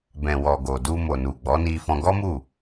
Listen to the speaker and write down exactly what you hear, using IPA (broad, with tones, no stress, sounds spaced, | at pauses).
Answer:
b ɛ̃˨ w ɔ˨ ɡ o˨ d u˧ m o˨ n u˨ ɡ͡b ɔ˨˦ n i˧ f ɔ̃˧ ɡ ɔ˦ m u˦˨